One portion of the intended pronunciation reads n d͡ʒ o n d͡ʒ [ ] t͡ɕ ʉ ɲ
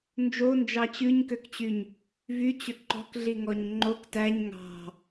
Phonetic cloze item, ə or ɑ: ɑ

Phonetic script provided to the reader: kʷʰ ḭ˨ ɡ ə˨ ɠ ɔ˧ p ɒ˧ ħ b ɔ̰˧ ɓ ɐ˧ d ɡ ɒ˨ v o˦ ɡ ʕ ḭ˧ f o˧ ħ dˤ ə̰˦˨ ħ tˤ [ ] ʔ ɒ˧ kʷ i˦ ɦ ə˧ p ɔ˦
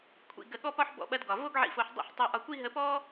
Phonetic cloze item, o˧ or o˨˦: o˧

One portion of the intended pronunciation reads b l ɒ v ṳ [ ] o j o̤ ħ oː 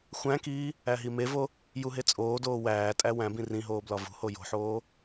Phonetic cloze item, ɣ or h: h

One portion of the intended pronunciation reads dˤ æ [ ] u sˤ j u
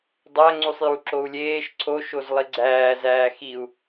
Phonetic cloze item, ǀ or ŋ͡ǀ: ŋ͡ǀ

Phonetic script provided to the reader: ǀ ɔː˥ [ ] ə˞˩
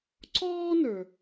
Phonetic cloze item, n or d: n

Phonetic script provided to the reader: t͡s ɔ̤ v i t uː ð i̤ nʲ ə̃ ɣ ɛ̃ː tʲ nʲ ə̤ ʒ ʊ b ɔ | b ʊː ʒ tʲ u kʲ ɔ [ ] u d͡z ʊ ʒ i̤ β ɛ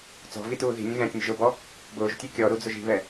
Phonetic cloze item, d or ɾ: ɾ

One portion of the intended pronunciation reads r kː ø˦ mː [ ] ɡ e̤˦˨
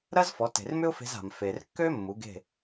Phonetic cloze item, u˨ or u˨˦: u˨˦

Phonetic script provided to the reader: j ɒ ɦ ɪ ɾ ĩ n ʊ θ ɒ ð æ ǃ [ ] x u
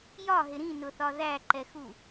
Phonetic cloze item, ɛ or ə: ɛ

